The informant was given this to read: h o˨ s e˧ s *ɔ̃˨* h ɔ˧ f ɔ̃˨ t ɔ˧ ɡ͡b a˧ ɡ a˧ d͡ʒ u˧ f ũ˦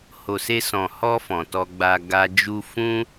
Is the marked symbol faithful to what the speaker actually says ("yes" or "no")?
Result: yes